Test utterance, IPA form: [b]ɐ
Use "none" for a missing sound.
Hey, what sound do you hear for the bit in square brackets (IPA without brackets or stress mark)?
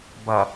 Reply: b